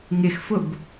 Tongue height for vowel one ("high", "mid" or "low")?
high